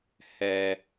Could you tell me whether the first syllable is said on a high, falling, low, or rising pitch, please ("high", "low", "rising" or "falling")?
high